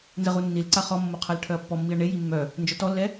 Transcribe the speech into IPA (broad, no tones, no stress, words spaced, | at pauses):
nzəʁu nːilǀa χɔmːo qʰalʈʰœɐ̯pːɔmːiɐ̯ ɳeji mːœ | nd͡ʒœtɔlːɛ